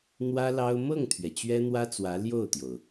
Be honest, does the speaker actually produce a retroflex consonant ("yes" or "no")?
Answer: no